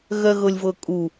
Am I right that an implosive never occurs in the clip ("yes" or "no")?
yes